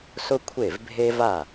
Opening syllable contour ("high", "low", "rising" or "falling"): high